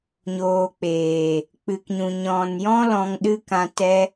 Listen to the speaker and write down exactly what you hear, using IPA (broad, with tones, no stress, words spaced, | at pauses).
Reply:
ɲoː˨ k͡peː˨ | k͡pɨ˨kɲũ˨ ɲɔ̃˨njɔ̃˦ lɔ̃˧ŋɗɨ˦kã˧ tɛ˦